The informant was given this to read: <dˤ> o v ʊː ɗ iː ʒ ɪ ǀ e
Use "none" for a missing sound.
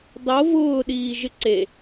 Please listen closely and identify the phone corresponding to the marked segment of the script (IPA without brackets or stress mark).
dˤ